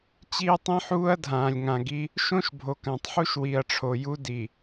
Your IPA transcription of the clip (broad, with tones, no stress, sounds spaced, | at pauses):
t͡ɕ iː˦ tˤ ĩ˦ ħ uː˦ ɐ̯ dʱ ãː˨ lʲ ŋ ã˨ ɡ i˦ | ʃ õ˦ ʃ bʱ o˨ k ã˨ tˤ ħ u˦ ʃ w i˨ ɐ̯ ʈ͡ʂʰ o˨ j u˦ d i˨